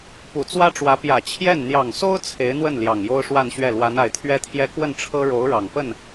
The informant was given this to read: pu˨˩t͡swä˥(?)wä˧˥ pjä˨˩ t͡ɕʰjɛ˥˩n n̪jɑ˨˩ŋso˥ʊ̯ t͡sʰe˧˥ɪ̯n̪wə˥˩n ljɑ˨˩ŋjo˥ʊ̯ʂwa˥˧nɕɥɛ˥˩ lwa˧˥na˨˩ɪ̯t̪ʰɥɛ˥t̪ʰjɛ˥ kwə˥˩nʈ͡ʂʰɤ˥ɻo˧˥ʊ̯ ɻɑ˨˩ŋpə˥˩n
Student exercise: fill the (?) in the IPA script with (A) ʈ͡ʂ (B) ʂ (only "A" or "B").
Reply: A